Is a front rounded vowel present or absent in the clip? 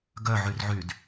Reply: present